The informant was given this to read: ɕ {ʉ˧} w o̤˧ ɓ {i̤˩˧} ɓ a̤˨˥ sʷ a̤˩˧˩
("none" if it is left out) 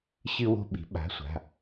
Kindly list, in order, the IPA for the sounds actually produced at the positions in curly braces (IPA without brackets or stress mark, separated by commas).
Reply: ɨ˧, i̤˩˧